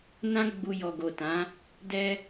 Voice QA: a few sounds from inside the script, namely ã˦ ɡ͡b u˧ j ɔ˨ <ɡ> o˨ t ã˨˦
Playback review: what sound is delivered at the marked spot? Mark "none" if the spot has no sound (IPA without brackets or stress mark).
ɡ